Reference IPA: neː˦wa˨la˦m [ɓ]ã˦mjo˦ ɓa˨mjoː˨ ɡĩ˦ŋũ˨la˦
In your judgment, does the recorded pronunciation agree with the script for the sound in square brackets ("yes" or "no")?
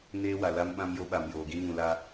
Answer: yes